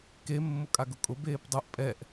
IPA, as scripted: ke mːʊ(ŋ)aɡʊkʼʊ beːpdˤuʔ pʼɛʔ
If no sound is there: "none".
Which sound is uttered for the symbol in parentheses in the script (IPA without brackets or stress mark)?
kʼ